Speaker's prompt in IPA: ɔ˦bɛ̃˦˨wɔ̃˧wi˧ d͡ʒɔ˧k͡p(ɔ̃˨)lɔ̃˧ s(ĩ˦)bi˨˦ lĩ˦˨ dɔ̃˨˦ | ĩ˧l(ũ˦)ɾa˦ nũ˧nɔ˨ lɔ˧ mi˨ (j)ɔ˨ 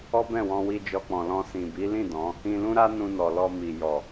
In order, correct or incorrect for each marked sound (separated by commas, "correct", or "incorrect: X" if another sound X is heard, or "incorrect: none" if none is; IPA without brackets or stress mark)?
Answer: correct, incorrect: ĩ˨, correct, correct